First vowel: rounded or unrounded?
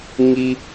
unrounded